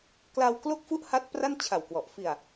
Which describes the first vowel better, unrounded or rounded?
unrounded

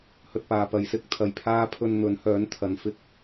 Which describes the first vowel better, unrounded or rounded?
rounded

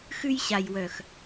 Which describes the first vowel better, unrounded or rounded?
rounded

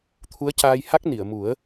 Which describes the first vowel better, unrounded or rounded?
rounded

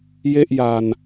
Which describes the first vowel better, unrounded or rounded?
unrounded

